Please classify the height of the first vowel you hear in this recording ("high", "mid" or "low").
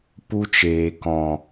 high